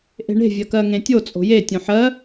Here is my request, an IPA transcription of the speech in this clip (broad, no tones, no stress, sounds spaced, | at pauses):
ʔ e̤ ɳ e̤ vʲ ɜ k ɜ ŋ ẽ tʲ o t͡sʼ o̤ j e tʲ õ ħ ɜ